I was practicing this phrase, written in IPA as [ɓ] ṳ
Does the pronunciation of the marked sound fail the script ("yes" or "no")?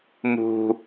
yes